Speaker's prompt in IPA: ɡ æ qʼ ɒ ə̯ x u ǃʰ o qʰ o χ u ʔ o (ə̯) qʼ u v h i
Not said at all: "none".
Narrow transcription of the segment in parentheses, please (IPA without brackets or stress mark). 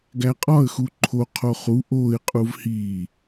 ɪ̯